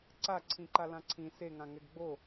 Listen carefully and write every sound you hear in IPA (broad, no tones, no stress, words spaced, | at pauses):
ǀaǀʰĩǃa lãǀʰĩ seŋã ŋɛɡɡ͡bo